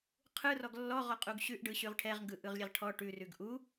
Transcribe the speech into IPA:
qʰ ɯ r ɔ ɡ lː ɔ ʁ ɔ qʼ u ɡ ɕ ʉ ʔ ɖ ɯ ɕ ʉ ʁ ʈʰ ɛ ʁ ŋ ɡ ɯ ʔ ɯ ʁ lʲ ɛ ʁ ʈʰ ɔ ʈ ʉ r ʉ ɡ ʔ u

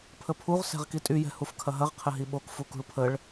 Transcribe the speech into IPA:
pʰ ə pʰ u ʁ s ɛ̤ ʁ k i tʼ y j ɛ̤ h u f kʰ ɐ ɦ ɐ ʁ qʰ ɘ ɦ i ɓ o k f u k ṳ ɭ pʰ ə ɭ

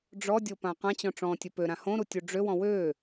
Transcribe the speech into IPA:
ɖ͡ʐ ɔ dʲ o p ã q ã t͡ɕ ɔ̃ ʈ͡ʂ ɔ̃ tʲ ɵ p ø ɾ ã h õ ɾ u tʲ u ɖ͡ʐ ø w ɔ̃ w ø

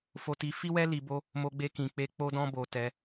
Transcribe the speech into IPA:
f o˧ t i˧ f i˦ w ɛ˦ l i˧ b o˦ | m o˧ ɡ͡b e˧ k ĩ˨ k͡p e˧ k͡p o˦ d ɔ̃˦ b o˧ t ɛ˧

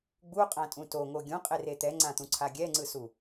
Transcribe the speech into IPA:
ɡ͡b u qʼ ã tʼ ũ t o ŋ o ɡʲ ũ qʼ e r e t̪ ɛ ŋ͡ǀ ã t̪ ũ ǀʰ a ɡʲ ɛ ŋ͡ǀ ɯ s u

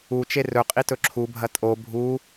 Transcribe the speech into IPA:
u t͡ʃ e r ɵ qʼ i t ɵ ǁʰ u bʱ ɐ tʼ o bʱ u

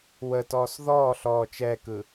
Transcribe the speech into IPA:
w ə t ɔː s ð ɔː ɬ ɔː t͡ʃ ɛ k ɯ

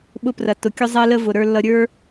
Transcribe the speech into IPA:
ɓ ʊ˧ p r ɐ˨ t ʊ˨ kʲ ʊ˦ zˤ ɛ˦ l ə˦ v ʊ˨ ɾ ə˞˧ lː ʌ˧ ɾʲ ə˞˦

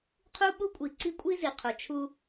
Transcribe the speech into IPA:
qʰ u˦ ɓ u˦ kʷʼ i˨ ǀ i˦ kʷʼ i˦ z i˨ qʰ o˨ t͡ʃʰ u˦

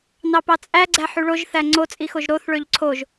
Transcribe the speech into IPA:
n ɑ p ɑ t͡sʼ æ ɡ͡ǀ æ ħ y ɭ o ʒ θ æ ŋ͡ǀ o t͡sʼ i x o ʒ ɾ o θ ɭ ø ʎ ǀʰ o ʒ

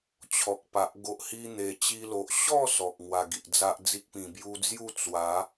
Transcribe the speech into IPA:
t͡ɕʰ ɔ˨ k̚ p a˨ ʔ ɡ o˨ ʔ h i˧ n̪ e˨˩ t͡ɕ i˧ l o˨ ʔ ɕ ɔ˥˧ s ɔ˨ k̚ ŋ w a˧ ɡ i˨ ʔ d͡z a˦ ʔ d͡z i˦ k̚ p ĩ˨˩ b j u˧ d͡z j u˥˧ t͡s w a˨˦

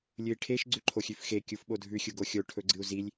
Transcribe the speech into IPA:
lʲ ɨ i̯ ʈʰ e ʃ ɡ͡ǀ ʉ ǃʰ o xʲ ʉ f x e kʲ u f ɓ o dʱ ʉ xʲ u ɡ o xʲ o ʈʰ ɵ ɡ͡ǀ ɨ u̯ z i lʲ

